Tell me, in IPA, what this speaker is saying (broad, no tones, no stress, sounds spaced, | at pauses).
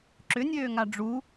ǁ ʏ nʲ øː ŋ a ɖ͡ʐ u